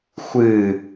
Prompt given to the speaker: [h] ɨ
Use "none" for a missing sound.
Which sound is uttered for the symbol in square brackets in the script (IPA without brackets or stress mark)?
xʷ